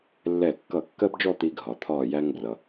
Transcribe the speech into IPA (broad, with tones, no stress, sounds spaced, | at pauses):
lː ɛ˧˩ kː ʌ˧˩ kː ɜ˥ b d͡ʒ ɔ˥˧ t̪ i˧ ɡʱ ɒ˩ t̪ʰ ɒː˧˩ j æ˧ ŋ b r ʌ˩